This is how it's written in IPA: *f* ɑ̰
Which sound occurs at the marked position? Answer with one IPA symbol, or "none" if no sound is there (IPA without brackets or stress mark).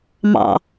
m